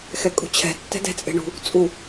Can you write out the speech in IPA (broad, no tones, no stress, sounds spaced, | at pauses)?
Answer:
x ɛ kʼ ṳ t͡ɕʰ ɛ̤ tː ɛ̤ d ɛ̤ t͡sʼ e̤ ɳ ṳ | t͡sʼ u